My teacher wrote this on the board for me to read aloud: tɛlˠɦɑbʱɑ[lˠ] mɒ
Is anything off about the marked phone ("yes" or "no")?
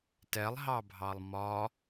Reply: no